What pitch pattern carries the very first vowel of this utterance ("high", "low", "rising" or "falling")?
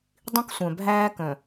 high